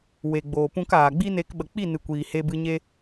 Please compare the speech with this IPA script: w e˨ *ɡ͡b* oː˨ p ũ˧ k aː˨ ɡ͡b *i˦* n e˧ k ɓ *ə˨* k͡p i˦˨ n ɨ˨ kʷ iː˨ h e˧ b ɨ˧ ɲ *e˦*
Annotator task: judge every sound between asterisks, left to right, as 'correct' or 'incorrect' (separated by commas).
correct, correct, correct, correct